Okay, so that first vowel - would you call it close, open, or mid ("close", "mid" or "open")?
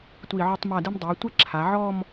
close